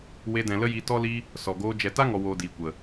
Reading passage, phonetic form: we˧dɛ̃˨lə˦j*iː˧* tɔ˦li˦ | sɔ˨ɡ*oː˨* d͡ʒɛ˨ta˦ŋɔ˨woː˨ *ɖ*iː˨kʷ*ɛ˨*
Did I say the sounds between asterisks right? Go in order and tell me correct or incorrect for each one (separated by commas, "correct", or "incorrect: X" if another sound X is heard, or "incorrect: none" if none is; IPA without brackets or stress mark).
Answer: incorrect: i˧, incorrect: oː˧, incorrect: d, incorrect: ə˨